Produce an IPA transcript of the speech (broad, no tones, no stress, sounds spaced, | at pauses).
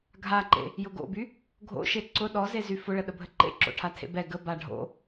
ɡʱ a ǃ ḛ | j ʊ ɡ o̰ b y | ɡʱ o̰ ʃ e ǀ ʊ ɗ ɔ z e z y f ʊ ɭ ə ɗ ə bʱ ə ǃ ḛ ǁ o̰ ʈʰ a tʰ ḛ b ɛ ɡ ə b a ɖʱ o̰